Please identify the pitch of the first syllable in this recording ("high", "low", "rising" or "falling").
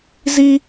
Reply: high